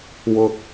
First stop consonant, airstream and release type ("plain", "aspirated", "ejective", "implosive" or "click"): plain